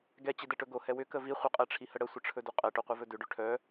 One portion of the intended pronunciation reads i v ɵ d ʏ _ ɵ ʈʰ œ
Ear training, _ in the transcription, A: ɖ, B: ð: A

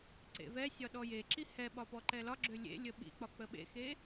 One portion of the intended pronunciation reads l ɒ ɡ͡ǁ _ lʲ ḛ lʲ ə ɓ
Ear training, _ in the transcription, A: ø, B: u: A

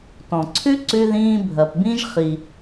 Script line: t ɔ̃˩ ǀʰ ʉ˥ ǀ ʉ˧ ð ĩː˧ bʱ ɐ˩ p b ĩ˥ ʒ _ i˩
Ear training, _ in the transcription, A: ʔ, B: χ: B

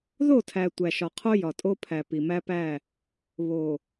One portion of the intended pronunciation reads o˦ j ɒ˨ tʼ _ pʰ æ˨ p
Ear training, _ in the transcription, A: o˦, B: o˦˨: A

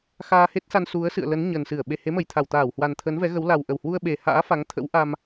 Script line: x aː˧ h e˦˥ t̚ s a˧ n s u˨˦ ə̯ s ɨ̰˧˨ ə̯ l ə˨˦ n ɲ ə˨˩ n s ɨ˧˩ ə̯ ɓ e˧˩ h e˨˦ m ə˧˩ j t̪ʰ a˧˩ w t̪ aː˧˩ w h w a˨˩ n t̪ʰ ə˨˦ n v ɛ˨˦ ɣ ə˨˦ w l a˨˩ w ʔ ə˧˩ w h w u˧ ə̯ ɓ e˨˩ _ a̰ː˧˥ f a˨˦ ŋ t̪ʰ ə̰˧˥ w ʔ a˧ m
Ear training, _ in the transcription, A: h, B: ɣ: A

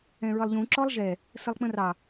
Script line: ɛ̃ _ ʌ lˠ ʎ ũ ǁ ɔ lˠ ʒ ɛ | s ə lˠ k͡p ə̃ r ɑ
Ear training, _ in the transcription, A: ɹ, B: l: A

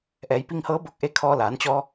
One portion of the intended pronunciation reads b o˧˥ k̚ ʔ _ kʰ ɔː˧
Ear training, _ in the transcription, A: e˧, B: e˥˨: A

